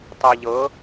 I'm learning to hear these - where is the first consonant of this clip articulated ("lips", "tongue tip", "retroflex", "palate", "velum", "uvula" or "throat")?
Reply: tongue tip